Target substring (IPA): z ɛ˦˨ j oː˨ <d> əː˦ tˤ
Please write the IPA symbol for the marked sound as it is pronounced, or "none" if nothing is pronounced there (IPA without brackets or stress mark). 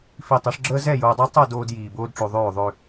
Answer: dˤ